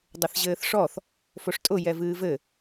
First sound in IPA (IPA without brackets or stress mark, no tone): dˤ